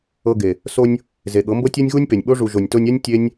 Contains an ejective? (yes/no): no